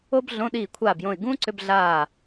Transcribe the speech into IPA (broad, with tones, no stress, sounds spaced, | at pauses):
o˥ b ɮ õ˧˥˧ ɗ iː˦˨ kʷʰ aː˦˨ b j õ˦˨ ɪ̯ ɡ ũː˥ ǀ ʏ˧˥˧ b ɮ aː˦˨